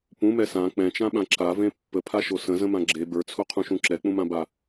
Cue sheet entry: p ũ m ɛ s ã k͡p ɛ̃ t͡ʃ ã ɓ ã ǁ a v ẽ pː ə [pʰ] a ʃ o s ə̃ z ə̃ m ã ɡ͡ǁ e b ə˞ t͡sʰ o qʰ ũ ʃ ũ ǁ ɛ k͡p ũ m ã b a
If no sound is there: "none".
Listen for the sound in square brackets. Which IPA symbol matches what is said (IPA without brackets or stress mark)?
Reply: pʰ